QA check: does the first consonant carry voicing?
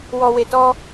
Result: yes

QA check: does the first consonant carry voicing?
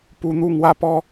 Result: no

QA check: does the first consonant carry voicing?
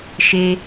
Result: no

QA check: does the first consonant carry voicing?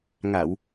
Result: yes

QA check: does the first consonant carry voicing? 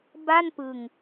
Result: yes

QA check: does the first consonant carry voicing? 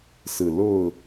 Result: no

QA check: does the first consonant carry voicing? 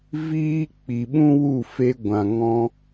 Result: yes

